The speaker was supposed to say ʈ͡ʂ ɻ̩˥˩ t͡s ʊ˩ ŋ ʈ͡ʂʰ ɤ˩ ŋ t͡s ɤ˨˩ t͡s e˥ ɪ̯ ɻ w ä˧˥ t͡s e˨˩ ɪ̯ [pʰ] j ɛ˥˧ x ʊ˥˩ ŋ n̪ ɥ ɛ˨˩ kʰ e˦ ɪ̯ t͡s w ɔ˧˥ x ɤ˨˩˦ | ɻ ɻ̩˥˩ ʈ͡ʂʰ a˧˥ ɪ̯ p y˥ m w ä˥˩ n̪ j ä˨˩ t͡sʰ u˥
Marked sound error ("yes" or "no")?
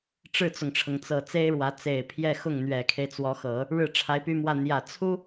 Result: no